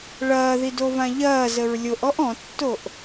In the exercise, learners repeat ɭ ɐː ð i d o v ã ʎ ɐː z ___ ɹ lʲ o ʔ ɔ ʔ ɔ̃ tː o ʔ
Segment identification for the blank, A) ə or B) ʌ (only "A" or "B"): A